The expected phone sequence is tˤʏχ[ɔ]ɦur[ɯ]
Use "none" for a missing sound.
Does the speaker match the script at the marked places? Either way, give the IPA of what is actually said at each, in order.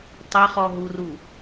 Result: ɔ, u

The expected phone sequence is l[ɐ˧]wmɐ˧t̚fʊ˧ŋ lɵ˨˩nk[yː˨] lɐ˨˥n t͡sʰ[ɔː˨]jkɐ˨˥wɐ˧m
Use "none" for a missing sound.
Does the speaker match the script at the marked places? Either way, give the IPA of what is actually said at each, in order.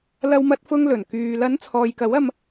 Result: ɐ˧, yː˨, ɔː˨

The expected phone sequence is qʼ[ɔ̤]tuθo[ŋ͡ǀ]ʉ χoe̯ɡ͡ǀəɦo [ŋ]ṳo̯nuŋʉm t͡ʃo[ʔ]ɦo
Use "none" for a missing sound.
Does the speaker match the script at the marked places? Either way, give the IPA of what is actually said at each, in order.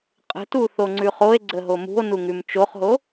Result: ə̤, ŋ͡ǀ, m, χ

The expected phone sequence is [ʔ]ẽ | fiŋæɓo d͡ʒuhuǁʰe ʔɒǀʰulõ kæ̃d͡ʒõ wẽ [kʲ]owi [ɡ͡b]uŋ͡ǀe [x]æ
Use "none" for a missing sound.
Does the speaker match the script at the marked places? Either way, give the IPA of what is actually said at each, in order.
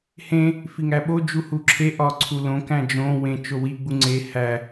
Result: h, t͡ʃ, ɡ͡b, h

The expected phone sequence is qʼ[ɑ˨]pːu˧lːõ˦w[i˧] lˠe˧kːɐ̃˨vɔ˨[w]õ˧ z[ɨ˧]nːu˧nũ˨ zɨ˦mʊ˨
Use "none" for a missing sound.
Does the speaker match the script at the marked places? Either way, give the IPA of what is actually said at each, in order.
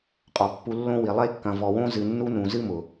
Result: ɔ˨, i˨, w, ɨ˨

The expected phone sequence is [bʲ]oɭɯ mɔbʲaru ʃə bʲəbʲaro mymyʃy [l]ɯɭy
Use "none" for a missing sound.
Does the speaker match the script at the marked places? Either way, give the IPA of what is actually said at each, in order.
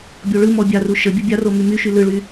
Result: bʲ, l

